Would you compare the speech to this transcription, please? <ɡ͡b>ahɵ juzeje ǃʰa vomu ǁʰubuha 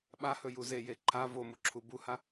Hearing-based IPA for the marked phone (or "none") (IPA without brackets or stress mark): ɓ